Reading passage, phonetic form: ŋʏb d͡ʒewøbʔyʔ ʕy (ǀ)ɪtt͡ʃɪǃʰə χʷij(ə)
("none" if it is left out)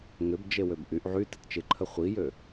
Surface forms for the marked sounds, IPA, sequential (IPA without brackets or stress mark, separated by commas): t, ø